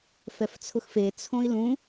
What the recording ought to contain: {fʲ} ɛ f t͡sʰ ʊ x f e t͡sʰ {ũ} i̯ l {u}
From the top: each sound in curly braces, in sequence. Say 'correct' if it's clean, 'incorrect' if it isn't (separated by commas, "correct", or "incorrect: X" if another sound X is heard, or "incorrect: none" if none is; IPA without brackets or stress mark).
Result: incorrect: f, incorrect: õ, incorrect: ũ